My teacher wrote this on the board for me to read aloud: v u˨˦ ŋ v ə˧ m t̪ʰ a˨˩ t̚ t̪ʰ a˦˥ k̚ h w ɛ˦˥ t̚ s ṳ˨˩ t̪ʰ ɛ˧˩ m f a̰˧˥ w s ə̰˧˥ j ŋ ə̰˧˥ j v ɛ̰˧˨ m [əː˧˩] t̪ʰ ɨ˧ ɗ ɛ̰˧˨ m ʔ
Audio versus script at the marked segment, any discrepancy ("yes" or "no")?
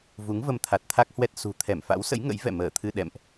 no